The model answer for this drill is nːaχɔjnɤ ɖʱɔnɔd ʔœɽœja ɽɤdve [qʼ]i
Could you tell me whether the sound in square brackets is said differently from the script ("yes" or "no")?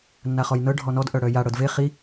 yes